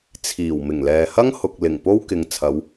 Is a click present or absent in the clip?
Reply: absent